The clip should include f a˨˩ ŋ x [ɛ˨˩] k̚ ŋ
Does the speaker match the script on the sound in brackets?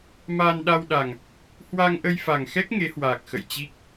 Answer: no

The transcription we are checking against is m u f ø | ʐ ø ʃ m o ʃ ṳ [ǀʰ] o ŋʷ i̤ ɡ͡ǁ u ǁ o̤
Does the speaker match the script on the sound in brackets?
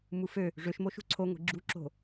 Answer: yes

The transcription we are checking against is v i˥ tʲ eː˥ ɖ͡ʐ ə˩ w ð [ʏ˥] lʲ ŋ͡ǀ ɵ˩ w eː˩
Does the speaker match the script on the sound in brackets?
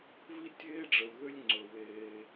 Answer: yes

